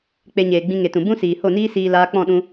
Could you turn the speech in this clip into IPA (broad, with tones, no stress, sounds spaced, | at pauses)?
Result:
k͡p e˧ ɲ eː˨ ɡ͡b ĩ˧ ŋ e˨ t ũ˨ b ũ˦ s iː˨ h o˦˨ n iː˦ s iː˧ l aː˧ k͡p ɔ̃˦˨ ɗ ũ˧